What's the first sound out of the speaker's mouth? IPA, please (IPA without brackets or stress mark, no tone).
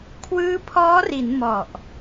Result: kʰ